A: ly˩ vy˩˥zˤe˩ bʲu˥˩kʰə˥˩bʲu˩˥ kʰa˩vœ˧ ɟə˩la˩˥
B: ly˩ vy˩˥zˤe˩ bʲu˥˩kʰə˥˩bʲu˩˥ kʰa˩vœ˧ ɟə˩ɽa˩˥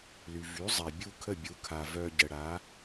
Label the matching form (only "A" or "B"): B